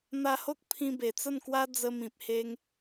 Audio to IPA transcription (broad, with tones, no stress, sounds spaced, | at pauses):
n̪ a˧ h o˦ k̚ pʰ ĩ˧ b e˨˩ t͡s ə˥˧ n k w a˦ d͡z ə˧ m ĩ˨ p̚ h e˦ ŋ